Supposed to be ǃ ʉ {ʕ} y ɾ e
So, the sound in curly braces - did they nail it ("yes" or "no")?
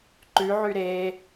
yes